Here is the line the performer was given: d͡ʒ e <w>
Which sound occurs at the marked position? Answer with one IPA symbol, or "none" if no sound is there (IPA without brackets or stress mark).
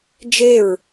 ɹ